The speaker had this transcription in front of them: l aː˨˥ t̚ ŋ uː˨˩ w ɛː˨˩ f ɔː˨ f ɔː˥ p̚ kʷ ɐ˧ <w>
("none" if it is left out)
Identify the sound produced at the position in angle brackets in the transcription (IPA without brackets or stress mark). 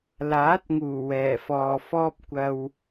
w